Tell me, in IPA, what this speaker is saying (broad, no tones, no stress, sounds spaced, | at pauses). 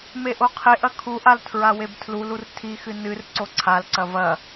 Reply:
m e ʔ o qʰ e ʔ ɐ kʰ u ʔ a l tʰ ɹ a w e b tʰ l u l u r tʰ i x ɨ n ɨ r ǀ o ǀʰ a l ǀ ɐ v ɐ